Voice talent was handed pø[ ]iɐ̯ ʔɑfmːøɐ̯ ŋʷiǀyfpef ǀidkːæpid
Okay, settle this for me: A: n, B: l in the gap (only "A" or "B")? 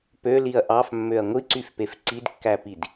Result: B